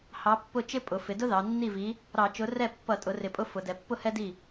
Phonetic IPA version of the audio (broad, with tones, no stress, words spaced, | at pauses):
hɑ˨˥pːʊ˥˩t͡ʃɪ˥ pʼʊ˩˧ fɪ˩˧dʊ˥ ðɑ˩˧ nːi˥˩vi˨˥ | ɾɑ˧˩˧t͡ʃʊ˨˥ rɛ˥˩ pːʌ˧˩˧tʼʊ˩˧rɪ˩˧pʼʊ˨˥ fʊ˩˧dɛ˩˧pːʊ˥˩ hɛ˥di˥˩